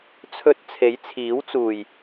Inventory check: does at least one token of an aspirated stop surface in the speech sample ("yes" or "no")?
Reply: yes